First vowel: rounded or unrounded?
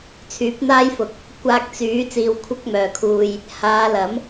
rounded